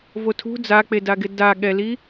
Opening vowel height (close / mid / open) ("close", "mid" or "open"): mid